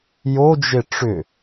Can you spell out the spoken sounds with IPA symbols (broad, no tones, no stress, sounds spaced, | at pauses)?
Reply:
j o d͡ʒ e ʈ͡ʂ ʏ